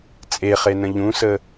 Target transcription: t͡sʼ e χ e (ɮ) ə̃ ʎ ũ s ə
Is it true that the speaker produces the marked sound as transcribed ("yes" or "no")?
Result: no